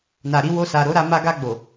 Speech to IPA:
na˨ɾi˧ wo˧sa˨ ɾo˨˦ɾa˧ ma˧ɡa˧ ɡ͡bo˨

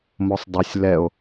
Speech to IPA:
mosˤdˤʊsʲ lɛo̯

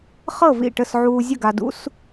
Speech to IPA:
χɤ˥˩vḭ˥˩ʈə˥˩s ʕuː˧zʲə˥˩ɡa˧dṵ˧˥˧s

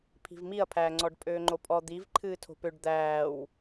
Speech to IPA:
pʰi̤vmiɐ̯pʰæːŋ͡ǀɔɖ pʼøːŋ͡ǃopʼɔ d̪iv ǃʰɨːtʰo̤pøɖ d̪æːw

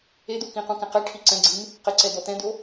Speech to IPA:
ed̪o kĩqũkɛ̃ qɛ ʈʰiǀɛ̃ɡ͡ǀim | qɘǀɛd̪ɔ t̪ɛ̃d̪o

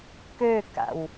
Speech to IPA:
køka̰w

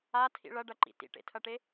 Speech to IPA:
atʰḭ ɭɐɖɐǃḭ tḭʈḛtʰɐʈe

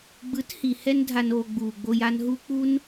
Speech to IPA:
ɡ͡bɯ˨˦thi˨ hɛ˧ndʱa˨noː˨ ɡ͡buː˨ɡ͡bo˧j a˧nɦu˦ k͡pu˦n

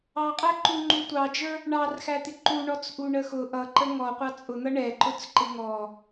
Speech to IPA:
ɑqʼæǃu ŋ͡ǃutʷɑd͡ʒə˞ | ɳɑrxæt̪ɪ ǃuɳɔt͡sʔu ɳəxʊ ʔʌǃə ŋɔqʷɑ t͡sʼʊn̪ʌ ɳɛǃʊt͡s ǃɪŋɔ

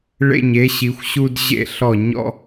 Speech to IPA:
ɭḛ˧˩ɲ e˩˧ ɕi˩˧xʷɕu˧d ʑḛ˧ɬɔ˧˩ ɲɔ̰˧

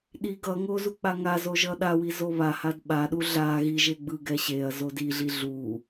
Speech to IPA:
ɗi ɡʌŋo zuk͡paŋazo ʒʌɗawi zoβahad ɓaɗu ɮa ɣiʒe ɡ͡bɯɡɛ ɕeɐ̯ zodiɮi ɮu

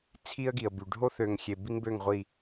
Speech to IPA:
t͡sʰi˦ə̯ɡi˨ə̯by˨ ɖʱo˦θø˨ŋxʲe˨ bi˦ŋbø˦˨ŋʁʷi˨

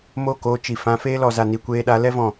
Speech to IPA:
mo˦˨koː˧t͡ʃi˨fã˧ feː˦lɔ˨za˨ ni˨kʷeː˧ɗa˨˦ lɛ˦vɔ̃˨

